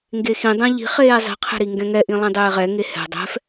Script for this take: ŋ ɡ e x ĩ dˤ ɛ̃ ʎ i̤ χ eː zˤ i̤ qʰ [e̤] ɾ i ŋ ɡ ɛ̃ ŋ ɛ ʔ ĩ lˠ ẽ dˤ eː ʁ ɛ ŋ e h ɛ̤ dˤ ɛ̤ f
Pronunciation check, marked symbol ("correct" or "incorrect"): correct